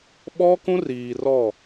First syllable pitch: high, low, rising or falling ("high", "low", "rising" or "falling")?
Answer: high